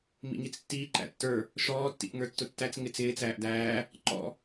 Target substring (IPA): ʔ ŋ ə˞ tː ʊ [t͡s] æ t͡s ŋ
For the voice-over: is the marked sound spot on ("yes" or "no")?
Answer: no